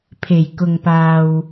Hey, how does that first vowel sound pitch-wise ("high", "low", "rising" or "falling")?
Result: low